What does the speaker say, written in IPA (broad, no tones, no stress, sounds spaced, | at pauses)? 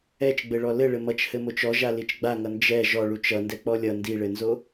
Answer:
ɛ t͡ʃ ɡ͡b ɘ ɭ ɔ l ɘ ɭ ɘ m ʌ t͡ʃ h ɘ m o t͡ʃ ɔ ʒ a l i t͡ʃ ɡ͡b a ŋ ʌ n d͡ʒ ɛ ʒ ɔ ɭ u t͡ʃ ʌ n d ɛ k͡p ɔ lʲ ʌ n d i ɭ ɘ n z o